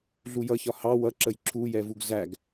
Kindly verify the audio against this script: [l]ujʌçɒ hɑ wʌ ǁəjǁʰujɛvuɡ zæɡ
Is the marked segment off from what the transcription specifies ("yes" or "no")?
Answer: yes